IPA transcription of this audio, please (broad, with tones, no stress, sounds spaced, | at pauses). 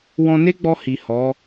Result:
w ɔ̃˧ n e˦ ɡ͡b ɔ˧ h i˨ h ɔ˨˦